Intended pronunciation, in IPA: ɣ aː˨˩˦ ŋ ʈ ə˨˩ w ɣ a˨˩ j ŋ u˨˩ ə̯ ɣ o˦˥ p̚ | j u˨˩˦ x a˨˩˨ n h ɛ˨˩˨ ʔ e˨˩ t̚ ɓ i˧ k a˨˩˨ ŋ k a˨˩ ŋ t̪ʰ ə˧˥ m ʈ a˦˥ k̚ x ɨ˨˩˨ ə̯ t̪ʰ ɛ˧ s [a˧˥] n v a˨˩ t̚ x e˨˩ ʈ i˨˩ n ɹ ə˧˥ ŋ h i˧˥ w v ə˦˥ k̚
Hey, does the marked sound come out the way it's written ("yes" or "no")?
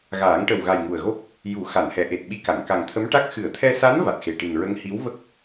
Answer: yes